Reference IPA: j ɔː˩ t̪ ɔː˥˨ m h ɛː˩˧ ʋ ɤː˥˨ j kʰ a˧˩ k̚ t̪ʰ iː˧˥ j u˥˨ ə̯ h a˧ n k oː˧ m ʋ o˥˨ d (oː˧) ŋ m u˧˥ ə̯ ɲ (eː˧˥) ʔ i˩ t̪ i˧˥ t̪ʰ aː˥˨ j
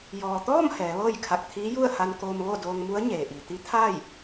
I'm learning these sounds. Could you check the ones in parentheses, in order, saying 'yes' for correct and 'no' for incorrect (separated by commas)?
yes, no